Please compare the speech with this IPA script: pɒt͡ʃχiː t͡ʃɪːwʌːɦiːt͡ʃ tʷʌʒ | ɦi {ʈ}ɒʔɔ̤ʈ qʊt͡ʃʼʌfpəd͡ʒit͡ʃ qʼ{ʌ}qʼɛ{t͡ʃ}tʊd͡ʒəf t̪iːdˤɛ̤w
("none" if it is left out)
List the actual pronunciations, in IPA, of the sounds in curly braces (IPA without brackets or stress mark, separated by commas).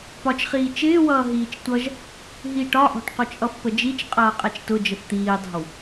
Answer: ʈ, ʌː, t͡ʃ